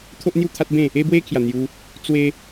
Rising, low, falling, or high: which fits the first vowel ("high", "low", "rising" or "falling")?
high